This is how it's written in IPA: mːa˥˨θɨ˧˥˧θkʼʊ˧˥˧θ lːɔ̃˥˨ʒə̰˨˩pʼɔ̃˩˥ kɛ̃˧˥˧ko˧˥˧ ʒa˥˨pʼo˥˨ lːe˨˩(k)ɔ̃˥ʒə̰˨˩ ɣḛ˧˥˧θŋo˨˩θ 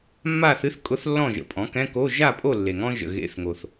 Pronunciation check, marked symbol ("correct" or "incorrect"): incorrect